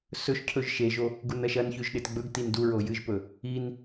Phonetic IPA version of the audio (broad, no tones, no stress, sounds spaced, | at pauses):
s ɵ ʃ cʰ ɵ ʒ ʃ e ʒ o | ɡ u n ɐ ʃ ɐ n ç ʉ ʒ ɗ e t ɡ͡b ɵ ɡ t i n d u ɹ o j ɨ ʒ p ɵ | i n